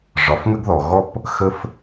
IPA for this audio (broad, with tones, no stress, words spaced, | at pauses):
ʐɒ˩˧fŋə˥ɡðɔ˩ ɣɔ˥p | xə˧f